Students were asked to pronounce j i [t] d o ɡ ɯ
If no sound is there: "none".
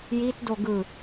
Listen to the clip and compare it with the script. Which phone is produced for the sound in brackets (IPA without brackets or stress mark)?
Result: t